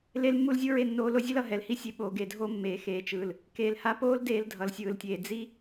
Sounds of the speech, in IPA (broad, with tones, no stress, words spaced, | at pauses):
le˦lmːu˦lzʲɯ˦ ɹe˦˨nːoː˧lo˦zʲɛ˦l ʌ˦ɦɛ˨lhi˦sʲe˧ ɓoː˨ɡe˨dʱo˦mːeː˨ xeː˨t͡ʃɯː˨l | keː˨lha˧poː˦l deː˧ldʱʌ˨lsʲɯː˨ltʲeː˨ d͡zi˦